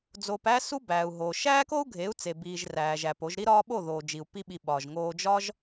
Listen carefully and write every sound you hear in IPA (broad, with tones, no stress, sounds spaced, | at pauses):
d͡z oː˧ p æ˦ s u˦ b æː˨ u̯ ɦ oː˨ ʃ æː˦ k o˦ u̯ ɡʱ e˨˦ u̯ t͡s e˨ b iː˨ ʒ r æː˨ ʒ æ˨ p o˨˦ ʒ ɾ i˦ ɾ ɒː˦ ɓ o˦˨ ð oː˨ d͡ʒ i˨ u̯ p i˦ ɓ i˧ ɓ ɒ˨ ʒ ŋ oː˧ d͡ʒ ɒ˦ ʒ